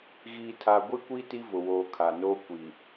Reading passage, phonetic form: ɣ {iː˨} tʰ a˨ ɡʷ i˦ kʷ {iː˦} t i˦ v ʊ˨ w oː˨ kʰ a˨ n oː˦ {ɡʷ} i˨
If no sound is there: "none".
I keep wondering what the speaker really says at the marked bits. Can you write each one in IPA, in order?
iː˨, iː˦, kʷ

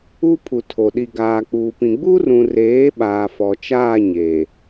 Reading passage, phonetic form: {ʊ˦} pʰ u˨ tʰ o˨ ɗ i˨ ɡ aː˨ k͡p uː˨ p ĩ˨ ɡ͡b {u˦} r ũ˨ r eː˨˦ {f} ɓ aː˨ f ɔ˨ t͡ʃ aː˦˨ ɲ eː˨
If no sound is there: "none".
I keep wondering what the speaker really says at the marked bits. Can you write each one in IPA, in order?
u˦, u˦, none

